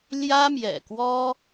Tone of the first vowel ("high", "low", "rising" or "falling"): high